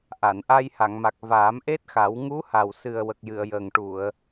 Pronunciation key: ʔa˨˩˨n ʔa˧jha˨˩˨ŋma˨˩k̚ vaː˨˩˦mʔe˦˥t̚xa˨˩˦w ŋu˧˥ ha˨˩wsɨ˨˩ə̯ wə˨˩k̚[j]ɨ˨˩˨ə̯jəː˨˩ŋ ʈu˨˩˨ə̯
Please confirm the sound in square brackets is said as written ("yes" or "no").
yes